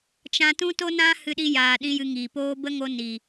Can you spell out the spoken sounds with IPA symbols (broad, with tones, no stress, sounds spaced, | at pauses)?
t͡ʃ ã˧ t ũ˦ t o˦ n ã˦ h ɨ˧ ɗ i˧ j aː˨ ɗ ĩ˦ j ɨ˧ ŋ iː˨ p oː˦ b ə˦ ŋ o˧ n i˨